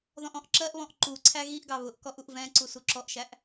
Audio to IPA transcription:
ð ɔ̃ ʔ ɔ̃ ʔ ǁ ɜ ʔ β ɔ̃ ʔ ǃ u ǀʰ æ ɣ i ʔ ɡ ɑ β ʊ ʔ k ɔ ʔ u ʔ v ɛ̃ ǀ u s u ǁ ɔ ʔ ʃ æ ʔ

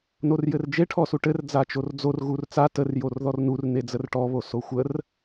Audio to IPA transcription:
n o r j ɘ r d͡ʒ e ʈʰ ɔ s u ʈ ɘ r d͡z a t͡ʃ o r d͡z o r ɣ u r t͡s a t ə r j o r ð ɔ r n u r n e d͡z ə r ʈ ɔ β o s o xʷ ə r

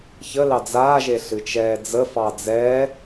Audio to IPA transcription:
ç ə l ɑ d͡z aː ʒ e ɬ ɨ t͡ʃ ɛː d͡z ə f ɑ d͡z ɛː

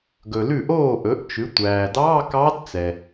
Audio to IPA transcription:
ɡ ɵ˨ l ʉ˥˩ ʔ oː˥˩ ʔ ɵ˩˥ ʔ t͡ʃ ʉ˩˥ tʷ æː˨ d ɑː˧˥˧ k ɑ˧˥ d t͡s ɛ˨

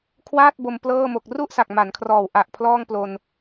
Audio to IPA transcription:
kʰ w aː˥˩ t̚ b o˧ m p l ɤː˥˩ m o˨˩ k̚ r u˥˩ ʔ s a˨˩ k̚ m a˩˦ n kʰ r ɔː˨˩ w ʔ a˨˩ ʔ pʰ l ɔː˥˩ ŋ p l o˧ n

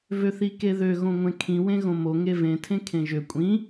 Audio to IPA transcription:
v ø θ i k e ð ø ɣ õ ŋʷ ẽ kʰ ĩ w ẽ ɣ õ m o ŋ e v ẽ tʰ ẽ kʰ ẽ ʒ ø kʷʼ ĩ

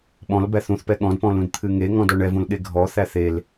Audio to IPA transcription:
ɓ ɔ̃ l b æ θ ũ θ p ɛ ɠ ɔ̃ d p ɔ̃ l ũ d t̪ʰ ɨ ŋ e ŋ ɔ̃ d ɔ ɳ ɛ v ũ l ɠ e ɡʱ ɔ θ æ θ e l

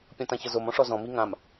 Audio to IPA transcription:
pʲ ɔ̃ t ã ç ɤ z o m ɔ̃ ʂ ɔ z ɔ̃ m i ŋ ã m

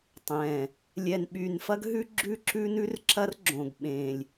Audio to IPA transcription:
tˤ ɛ̃˨˩ | lʲ ɛ˨˩ n ɓ y˨˩ n f ɐ˦ ɡ ɦ ʉ˦ ɡ͡ǁ ʉ˦ ǁ ʉ˦ n ʉ˦ r ǁ ɐ˦ r ɡ͡ǁ õ˨˩ ɡ ɓ ẽ˨˩ lʲ

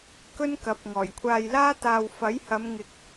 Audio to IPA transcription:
k ɵ˥ n k ɐ˨˥ p̚ ŋ ɔː˨˩ j kʷʰ aː˧ j l aː˥ t̪ aː˧ w f ɐ˨˥ j h ɐ˨˧ m ŋ ɪ˧ k̚

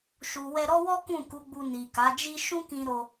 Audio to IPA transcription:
ʃ u˨ w ɛ˧ ɾ ɔ˦ w ɔ˦ k ũ˦˨ k u˨˦ ɡ͡b u˧ n i˨ k a˨˦ d͡ʒ i˦ ʃ ũ˦ k ĩ˧ ɾ o˧

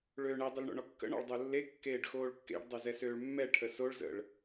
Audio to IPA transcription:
ɭ øː ɳ ɛ dˤ ɘ l ɳ o̰ ɳ ɔ kː ə̰ ɳ ɔ̰ ɭ dˤ o lː e kː eː ɖ x oː ɭ kː ḛ ɖ dˤ ø z ɛ s øː ɭ mː ɛ ʈʰ ə s o ɭ z ə̰ ɭ

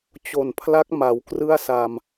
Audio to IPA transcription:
t͡ɕ o˨˩ n pʰ l a˦˥ k̚ m a˩˦ w k r ɯ˥˩ a̯ s a˧ m

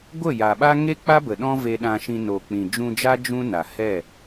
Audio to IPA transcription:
ɡʷ ə˦˨ j a˨ ɓ a˦ ŋ e˦ k͡p a˦ b ə˨ ɗ ɔ̃˦ v e˧ ɗ ã˧ ʃ ĩ˧ n o˨ k͡p ĩ˨ d͡ʒ ũ˧ d͡ʒ a˦ d͡ʒ ũ˦ n a˨ h ɛ˦˨

